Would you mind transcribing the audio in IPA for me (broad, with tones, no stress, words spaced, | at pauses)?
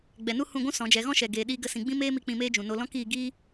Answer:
ɡ͡bɛ˨ nu˦ hũ˦˨ɡʷũ˦ sɔ̃˨˦d͡ʒɛ˨˦ ɣɔ̃˦ʃɛ˨ ɡeː˨ɗiː˧ɡə˧ sĩ˨ɡ͡bĩ˦meː˦mi˧ k͡pĩ˧meː˦d͡ʒũ˨no˧ lɔ̃˦kiː˧ɡiː˦